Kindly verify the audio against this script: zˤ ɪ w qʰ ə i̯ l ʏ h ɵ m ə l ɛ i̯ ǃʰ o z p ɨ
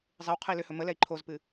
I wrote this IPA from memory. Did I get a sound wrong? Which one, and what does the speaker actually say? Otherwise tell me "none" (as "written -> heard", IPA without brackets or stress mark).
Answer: none